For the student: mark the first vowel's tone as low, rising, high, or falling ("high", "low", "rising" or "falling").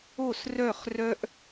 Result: falling